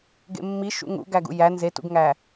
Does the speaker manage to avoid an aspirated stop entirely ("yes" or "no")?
yes